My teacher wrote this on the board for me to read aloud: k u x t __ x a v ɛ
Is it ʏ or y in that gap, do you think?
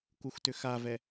ʏ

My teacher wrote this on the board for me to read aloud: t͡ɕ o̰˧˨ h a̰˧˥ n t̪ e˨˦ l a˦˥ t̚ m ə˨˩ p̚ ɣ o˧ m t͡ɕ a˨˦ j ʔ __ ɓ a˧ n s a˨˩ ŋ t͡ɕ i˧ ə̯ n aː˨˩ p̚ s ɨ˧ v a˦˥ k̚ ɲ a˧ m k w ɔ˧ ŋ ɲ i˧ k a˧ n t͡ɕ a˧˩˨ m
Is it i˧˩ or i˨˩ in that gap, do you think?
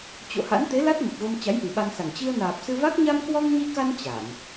i˨˩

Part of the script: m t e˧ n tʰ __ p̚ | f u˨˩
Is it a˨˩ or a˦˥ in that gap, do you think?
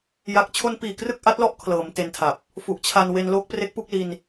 a˨˩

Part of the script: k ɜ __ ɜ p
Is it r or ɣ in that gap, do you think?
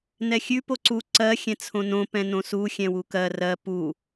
r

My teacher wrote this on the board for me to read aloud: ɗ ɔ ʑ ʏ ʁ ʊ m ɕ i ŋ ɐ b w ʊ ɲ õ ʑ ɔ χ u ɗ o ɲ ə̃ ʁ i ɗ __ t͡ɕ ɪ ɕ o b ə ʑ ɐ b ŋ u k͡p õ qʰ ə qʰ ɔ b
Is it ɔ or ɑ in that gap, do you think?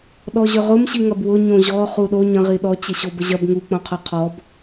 ɔ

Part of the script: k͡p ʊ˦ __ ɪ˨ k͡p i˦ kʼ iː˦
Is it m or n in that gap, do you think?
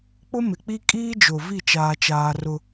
m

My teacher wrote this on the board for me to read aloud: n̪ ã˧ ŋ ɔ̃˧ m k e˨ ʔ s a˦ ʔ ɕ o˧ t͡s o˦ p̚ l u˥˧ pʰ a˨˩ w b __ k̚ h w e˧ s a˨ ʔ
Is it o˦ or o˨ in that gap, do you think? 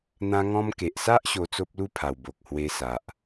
o˨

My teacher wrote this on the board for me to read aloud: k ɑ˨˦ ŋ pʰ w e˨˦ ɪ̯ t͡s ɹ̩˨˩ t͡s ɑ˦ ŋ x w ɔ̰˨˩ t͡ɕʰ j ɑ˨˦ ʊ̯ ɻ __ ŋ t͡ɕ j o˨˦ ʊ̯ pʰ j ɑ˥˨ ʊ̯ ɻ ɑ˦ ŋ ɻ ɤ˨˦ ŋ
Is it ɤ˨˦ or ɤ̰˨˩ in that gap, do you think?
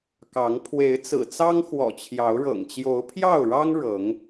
ɤ̰˨˩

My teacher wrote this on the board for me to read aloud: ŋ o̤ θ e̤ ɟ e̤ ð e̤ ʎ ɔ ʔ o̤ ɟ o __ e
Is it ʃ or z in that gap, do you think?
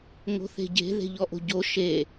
ʃ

